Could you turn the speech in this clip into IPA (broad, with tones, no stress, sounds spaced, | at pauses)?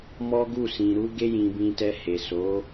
m ɔ˦ ɡ u˦˨ s ĩ˨ ɾ u˧ ɡ e˧ j ĩ˨ b ĩ˧ t ɛ˧ h e˨ s o˨˦